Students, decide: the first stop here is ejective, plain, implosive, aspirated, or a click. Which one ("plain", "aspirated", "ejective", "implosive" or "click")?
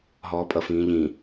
ejective